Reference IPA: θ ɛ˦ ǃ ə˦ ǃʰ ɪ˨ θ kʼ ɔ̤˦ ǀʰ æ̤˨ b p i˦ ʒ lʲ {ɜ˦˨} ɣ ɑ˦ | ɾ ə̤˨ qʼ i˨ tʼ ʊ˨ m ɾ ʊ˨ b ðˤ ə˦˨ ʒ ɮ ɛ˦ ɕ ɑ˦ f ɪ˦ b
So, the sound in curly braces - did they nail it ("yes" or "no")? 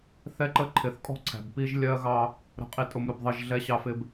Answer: no